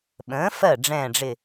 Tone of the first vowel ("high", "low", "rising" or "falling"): rising